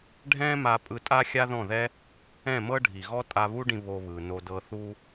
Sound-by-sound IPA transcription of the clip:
ɖʱ ɛ̃˦ m a˧ pʼ ɯ˧ tʼ a˦ xʲ a˦ ð ɔ̃˦˨ ð ɛ˦ | ɛ̃˦˨ m ɤ˦ ɖʱ i˨ ɣ ɔ˦ tʼ a˧ β u˦ ɖ ĩ˧ β o˧ β ɯ˨ n o˧ d ɤ˧ θ u˦

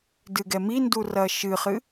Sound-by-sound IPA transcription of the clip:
d ɨ ɡ ɛ m i n d u r ɐ ʃ ɨ χ ɨ

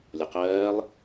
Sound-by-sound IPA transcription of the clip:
lʲ ɔ q ɜː lˠ

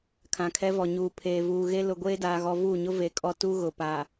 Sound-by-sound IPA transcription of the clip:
kʰ ã˨ kʰ ɛ˦ v ɔ˨ ɲ uː˨ pʰ eː˨ v uː˨ ɣ e˦ l ʊ˨ ɡʷ eː˦ d aː˨ ɣ ɔ˨ v uː˦˨ ɲ ʊ˦ v e˨ kʼ ɔ˦ t u˦ ɣ ʊ˨ p a˨

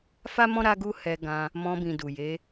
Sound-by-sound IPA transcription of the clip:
f a˦ m ɔ̃˦ ɾ a˦ ɡ u˦ h ɛ˧ ɡ ã˧ | m ɔ̃˧ b ĩ˨ d u˨ j e˨˦

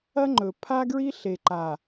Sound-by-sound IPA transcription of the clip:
ɐ˦ ŋ͡ǃ ɵ˨ pʰ a˦ ɡ ɹ i˦ ɬ e˨ ǃ a˨

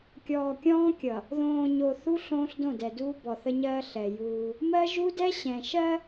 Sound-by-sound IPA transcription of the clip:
kʲ ɔː˨ kʲ ɔ̃ː˦ kʲ ʌ˨ | ð õː˨ ɲ o˨ θ u˦ ɬ õː˦ ɬ d õ˦˨ d ɛ˨ d uː˦ b ɔ˨ θ ə˦ ɲ ɜː˦ ɬ ɛ˨ j uː˦ | m ɜ˦ ʒ u˦ d ɛ˦ ɕ ɛ̃˨ ʃ ɜ˦

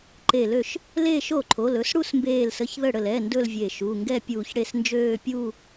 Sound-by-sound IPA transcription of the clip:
ǃ e˧˩ l ø˥˩ ʃ | l eː˥˧ ʃ o˥˩ ǃʰ o˩˧˩ l ɵ˥˧ s ɽ u˥˧ s m b eː˧˩ l s ə˩˧˩ ç ð ə˥˩ ɽ ə˧˩ l ɛ˩˧˩ n d ɵ˥˧ l vʲ e˧˩ ʃ u˩˧˩ ŋ ɡ ɛ˥˧ pʲ uː˧˩ ç ɽ e˥˩ s n d͡ʒ øː˥˧ pʲ uː˥˧

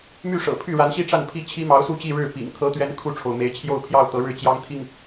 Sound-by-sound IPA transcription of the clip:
m y˥˩ ʂ ɤ̰˨˩ pʰ y˥˩ ɻ a˧˥ n ɕ i˥˧ ʈ͡ʂ a˥˩ n pʰ i˥ t͡ɕʰ i˥ m ɑ˧˥ ʊ̯ s u˥˧ t͡ɕ i˥˧ ɻ ɻ̩˥˩ p ḭ˨˩ ŋ t̪ʰ ɤ˧˥ t̪ ɥ ɛ˧˥ n kʰ u˥˩ ʈ͡ʂʰ o˩ ʊ̯ m e˧˥ ɪ̯ t͡ɕʰ j o˥˧ ʊ̯ pʰ j ɑ˥˩ ʊ̯ t̪ ɤ˧˥ ɻ ɻ̩˥˩ t͡ɕ j ɑ˥ ŋ t̪ʰ i˥˩ ŋ

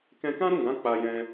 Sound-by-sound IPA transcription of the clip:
k ɛ̃˧ k ã˦ ɾ ũ˦˨ ɡ ã˨˦ k͡p a˧ j ɛ̃˧

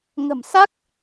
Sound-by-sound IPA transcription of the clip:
ŋ ə̤˨˩ m s a˦˥ k̚

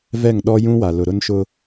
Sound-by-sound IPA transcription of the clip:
v ɛ˦˨ ŋ ɗ ɔ˦ j ũ˦ w a˨ l ʊ˨ ɾ ʊ˦ n ʃ ʊ˦

